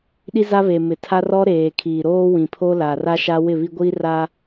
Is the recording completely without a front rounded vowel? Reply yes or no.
yes